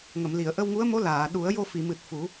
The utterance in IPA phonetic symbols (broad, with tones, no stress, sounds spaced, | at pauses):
ŋ ə˨˩˨ m l i˨˩˨ ə̯ ʔ ə˧ w ŋ u˧˥ ə̯ m o˧˥ l aː˨˩˨ ɗ u˨˩˦ ə̯ j o˧ f i˨˩˨ m ɨ˨˩ t̚ f u˨˩˦